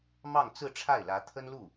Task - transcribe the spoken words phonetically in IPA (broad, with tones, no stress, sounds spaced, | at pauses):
m ɑ˥˧ ŋ t͡s ɹ̩˥˧ ʈ͡ʂʰ a˥˩ ɪ̯ l ä˧˥ t̪ʰ ə˥ n l u˥˩